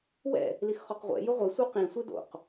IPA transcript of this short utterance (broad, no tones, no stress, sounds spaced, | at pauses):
w ɛ̰ | l i x χ ɔ q ʁʷ ɛ̰ j ʊ ʁʷ e sʷ œ q ĩ sʷ e d o̰ q